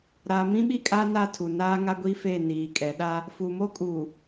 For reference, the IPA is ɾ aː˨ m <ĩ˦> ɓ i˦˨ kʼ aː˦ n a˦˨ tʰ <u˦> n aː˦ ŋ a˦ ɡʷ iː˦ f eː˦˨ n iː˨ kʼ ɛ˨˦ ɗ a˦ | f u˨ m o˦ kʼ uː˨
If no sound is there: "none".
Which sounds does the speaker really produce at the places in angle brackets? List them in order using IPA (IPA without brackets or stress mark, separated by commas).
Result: ĩ˦, u˨